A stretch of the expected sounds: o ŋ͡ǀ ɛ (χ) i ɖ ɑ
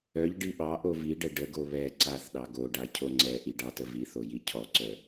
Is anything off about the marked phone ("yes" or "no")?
yes